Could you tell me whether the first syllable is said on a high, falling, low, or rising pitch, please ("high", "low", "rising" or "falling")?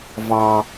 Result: high